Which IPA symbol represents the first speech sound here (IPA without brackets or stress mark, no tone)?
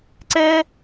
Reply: ǀ